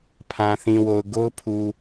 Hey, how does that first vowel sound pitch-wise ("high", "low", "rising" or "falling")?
low